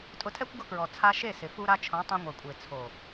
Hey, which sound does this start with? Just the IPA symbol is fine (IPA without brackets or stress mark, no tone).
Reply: tʼ